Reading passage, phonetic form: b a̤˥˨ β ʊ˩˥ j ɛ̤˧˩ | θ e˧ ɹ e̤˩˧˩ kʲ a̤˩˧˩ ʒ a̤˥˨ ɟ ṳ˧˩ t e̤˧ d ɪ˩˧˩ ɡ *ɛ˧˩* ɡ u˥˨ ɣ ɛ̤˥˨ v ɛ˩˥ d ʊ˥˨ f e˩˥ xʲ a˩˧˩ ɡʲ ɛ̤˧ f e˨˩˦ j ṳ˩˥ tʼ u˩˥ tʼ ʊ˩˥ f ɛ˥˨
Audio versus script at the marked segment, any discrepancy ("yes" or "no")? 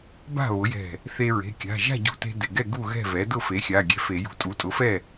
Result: yes